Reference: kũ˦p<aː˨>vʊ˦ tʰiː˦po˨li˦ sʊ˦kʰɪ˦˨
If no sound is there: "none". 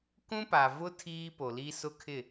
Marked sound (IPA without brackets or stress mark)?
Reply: a˨